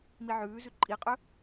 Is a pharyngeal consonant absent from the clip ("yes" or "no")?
no